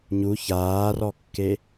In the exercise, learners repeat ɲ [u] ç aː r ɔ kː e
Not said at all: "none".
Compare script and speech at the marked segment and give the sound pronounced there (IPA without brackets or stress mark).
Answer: u